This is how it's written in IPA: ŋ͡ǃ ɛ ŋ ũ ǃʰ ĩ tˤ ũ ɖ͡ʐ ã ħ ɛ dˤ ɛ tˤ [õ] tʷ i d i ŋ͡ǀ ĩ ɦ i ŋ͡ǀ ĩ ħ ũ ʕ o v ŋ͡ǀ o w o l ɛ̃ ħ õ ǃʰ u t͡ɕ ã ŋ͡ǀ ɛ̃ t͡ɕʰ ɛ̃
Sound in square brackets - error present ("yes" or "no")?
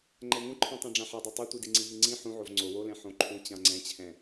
yes